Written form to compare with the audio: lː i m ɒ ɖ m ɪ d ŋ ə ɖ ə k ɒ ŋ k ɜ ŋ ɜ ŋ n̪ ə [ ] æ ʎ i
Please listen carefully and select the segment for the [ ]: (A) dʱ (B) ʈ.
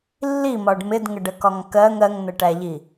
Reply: B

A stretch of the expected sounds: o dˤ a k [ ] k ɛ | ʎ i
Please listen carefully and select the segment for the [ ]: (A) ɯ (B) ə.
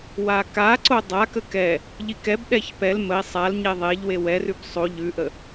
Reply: B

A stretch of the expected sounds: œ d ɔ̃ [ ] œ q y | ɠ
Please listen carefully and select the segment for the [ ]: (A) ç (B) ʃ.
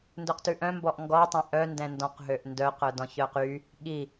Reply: A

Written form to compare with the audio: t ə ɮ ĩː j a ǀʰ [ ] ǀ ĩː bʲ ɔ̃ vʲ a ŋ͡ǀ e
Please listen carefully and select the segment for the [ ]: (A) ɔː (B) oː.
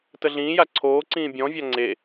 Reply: B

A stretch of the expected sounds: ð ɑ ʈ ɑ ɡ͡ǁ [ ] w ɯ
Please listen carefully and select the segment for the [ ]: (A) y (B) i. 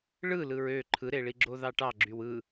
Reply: A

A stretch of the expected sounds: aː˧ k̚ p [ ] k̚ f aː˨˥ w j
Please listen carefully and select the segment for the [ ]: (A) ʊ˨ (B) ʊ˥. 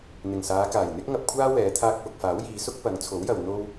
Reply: A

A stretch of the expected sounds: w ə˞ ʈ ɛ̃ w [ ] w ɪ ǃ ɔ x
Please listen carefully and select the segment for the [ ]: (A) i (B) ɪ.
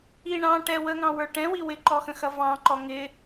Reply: A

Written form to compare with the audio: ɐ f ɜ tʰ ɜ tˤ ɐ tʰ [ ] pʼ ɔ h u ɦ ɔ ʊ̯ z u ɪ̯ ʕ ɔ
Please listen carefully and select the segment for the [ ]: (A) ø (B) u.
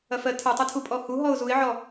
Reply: B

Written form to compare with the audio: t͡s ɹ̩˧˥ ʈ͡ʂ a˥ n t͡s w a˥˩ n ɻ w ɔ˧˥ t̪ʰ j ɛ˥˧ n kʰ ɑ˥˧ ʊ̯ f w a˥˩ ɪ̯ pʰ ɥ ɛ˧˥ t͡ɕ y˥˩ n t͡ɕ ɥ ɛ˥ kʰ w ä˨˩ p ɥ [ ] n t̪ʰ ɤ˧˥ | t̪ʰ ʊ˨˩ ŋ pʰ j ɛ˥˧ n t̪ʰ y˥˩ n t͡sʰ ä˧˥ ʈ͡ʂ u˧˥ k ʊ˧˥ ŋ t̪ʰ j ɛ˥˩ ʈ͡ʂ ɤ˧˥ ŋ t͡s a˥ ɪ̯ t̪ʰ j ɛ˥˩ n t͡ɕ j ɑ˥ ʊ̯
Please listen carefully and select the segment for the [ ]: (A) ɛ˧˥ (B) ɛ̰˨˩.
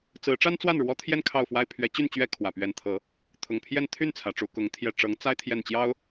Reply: A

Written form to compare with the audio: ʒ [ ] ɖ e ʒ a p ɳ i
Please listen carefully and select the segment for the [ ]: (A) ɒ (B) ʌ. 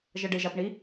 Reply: B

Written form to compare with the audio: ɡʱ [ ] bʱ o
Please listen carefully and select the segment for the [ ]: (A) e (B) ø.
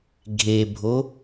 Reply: A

